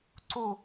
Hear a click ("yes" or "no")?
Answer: yes